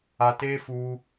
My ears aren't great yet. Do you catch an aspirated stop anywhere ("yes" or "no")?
no